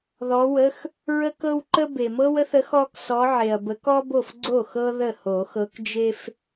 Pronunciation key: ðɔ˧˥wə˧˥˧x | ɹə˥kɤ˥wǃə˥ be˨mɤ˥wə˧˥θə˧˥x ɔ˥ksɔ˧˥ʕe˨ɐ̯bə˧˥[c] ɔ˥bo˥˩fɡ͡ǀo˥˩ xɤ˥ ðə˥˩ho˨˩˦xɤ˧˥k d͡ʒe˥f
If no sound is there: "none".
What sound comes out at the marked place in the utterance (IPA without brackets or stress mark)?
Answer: k